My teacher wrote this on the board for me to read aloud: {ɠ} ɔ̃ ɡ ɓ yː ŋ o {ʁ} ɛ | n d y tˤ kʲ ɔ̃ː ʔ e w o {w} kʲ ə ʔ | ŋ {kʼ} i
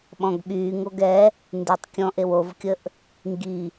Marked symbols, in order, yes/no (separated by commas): no, no, no, no